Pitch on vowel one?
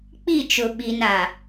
falling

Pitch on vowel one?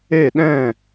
falling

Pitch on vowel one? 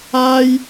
high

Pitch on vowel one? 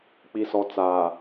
low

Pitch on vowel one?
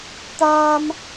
high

